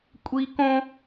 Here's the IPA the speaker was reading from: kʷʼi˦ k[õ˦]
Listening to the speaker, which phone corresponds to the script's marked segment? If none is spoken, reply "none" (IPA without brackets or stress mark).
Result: õ˦